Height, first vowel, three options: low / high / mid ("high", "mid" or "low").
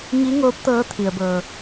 high